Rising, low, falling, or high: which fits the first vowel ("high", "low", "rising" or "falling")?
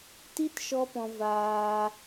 high